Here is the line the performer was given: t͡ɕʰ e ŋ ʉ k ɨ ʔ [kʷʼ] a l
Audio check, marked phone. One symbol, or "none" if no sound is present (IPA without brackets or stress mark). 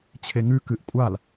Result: kʷʼ